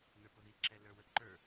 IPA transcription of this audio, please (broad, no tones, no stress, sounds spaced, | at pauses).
n ə˞ p ʊ ð i ǁ ɛ l ə˞ w ə ǃ ə˞